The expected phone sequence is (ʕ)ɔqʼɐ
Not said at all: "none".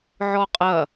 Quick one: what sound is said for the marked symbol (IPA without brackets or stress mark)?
ʕ